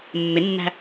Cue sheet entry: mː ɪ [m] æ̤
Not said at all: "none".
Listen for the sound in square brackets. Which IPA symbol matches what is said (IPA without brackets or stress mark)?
nː